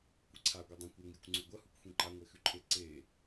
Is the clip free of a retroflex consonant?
yes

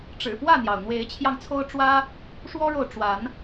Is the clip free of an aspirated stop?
no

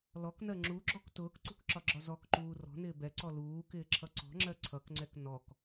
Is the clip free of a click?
no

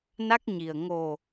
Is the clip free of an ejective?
yes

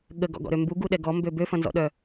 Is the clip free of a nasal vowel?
no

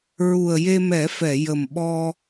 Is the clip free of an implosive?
no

